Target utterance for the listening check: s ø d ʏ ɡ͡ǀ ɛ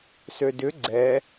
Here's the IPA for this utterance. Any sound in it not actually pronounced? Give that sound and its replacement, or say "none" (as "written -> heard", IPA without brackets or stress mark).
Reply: none